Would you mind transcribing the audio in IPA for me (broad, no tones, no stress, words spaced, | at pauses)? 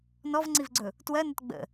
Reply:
nɔvŋ͡ǀivɡ͡ǀɵ | twɜnət ɡ͡bə̰